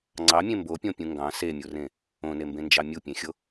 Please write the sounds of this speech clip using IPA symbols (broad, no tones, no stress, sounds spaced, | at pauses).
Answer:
ŋ͡ǀ ɑ mʲ ẽ m b o pʲ õ pʲ ũ ŋ ɡ ɑ̃ s e mʲ u r ẽ | õ n e m b ẽ n d͡ʒ ɑ mʲ u pʲ ẽ xʲ o